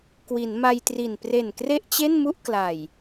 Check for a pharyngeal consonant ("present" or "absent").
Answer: absent